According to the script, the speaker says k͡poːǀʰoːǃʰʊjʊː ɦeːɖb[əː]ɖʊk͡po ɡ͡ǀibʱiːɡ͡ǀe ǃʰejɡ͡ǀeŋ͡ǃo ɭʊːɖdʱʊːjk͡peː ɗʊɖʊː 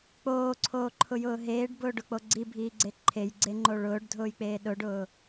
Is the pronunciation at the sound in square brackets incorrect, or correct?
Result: incorrect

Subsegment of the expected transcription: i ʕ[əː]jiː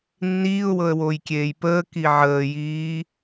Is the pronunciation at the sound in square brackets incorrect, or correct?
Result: correct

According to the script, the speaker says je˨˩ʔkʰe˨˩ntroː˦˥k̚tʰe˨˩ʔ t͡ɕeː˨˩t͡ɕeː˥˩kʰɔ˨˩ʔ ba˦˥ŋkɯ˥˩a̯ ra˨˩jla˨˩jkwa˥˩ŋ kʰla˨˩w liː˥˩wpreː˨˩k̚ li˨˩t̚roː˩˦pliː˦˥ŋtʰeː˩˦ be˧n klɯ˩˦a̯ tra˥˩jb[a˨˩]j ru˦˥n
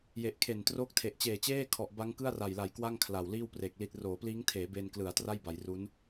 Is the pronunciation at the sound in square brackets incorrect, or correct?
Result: incorrect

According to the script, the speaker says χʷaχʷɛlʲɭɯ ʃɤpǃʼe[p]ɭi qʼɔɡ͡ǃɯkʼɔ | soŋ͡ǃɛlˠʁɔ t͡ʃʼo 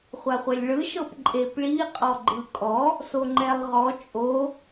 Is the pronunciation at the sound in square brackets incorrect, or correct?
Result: correct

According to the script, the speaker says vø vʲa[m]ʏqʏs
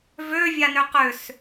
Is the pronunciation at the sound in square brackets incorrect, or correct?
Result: incorrect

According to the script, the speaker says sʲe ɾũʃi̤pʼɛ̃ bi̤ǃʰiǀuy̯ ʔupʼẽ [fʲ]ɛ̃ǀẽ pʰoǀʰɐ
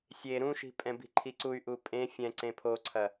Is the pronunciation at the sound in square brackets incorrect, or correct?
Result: correct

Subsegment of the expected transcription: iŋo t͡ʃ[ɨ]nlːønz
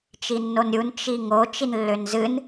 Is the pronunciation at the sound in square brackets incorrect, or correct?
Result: incorrect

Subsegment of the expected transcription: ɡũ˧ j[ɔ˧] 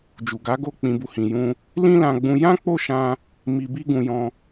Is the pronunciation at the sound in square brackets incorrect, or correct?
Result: incorrect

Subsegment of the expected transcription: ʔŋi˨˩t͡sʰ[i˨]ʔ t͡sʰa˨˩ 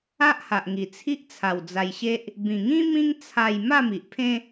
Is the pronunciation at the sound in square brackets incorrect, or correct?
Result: incorrect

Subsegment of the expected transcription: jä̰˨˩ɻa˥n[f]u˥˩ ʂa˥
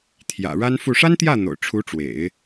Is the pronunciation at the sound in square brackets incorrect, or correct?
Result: correct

